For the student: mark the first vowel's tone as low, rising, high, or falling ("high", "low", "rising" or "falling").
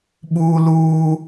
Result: high